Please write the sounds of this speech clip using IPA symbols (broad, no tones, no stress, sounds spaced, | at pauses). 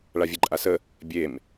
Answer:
ɭ a vʲ e ǃʼ a s ə | bʲ e m